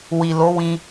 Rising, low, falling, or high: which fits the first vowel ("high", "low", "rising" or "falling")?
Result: low